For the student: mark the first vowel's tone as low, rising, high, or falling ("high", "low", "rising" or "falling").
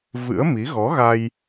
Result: rising